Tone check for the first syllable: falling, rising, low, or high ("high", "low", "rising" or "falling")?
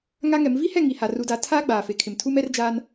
high